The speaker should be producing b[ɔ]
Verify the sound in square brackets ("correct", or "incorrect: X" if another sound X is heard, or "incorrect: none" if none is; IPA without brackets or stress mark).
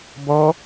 correct